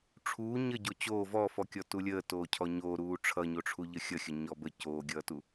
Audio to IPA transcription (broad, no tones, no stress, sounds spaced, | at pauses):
ʈ͡ʂʰ uː ɲ ə ɟ o t͡ɕ oː v ɔ f ɔ kʲ ɔ t u lʲ əː t oː cʰ ɔ ɲ oː ɾ uː ʈ͡ʂʰ ʌ ɲ o ʈ͡ʂʰ u ʎ ə xʲ ʌ xʲ ə ɲ ɔ b ə c oː ɡʲ ʌː t u